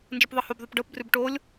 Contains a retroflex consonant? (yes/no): yes